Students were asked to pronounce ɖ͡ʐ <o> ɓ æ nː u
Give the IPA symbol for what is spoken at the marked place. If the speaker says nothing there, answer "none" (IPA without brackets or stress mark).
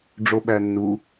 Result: o